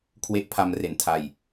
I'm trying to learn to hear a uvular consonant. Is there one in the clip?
no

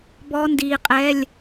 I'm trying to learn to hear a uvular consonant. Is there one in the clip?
yes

